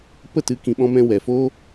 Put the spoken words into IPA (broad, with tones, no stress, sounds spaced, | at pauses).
p ə˦˨ t ɨ˨˦ k ĩ˨ ɓ ɔ̃˧ m ɛ̃˧ w ɛ˨ f oː˦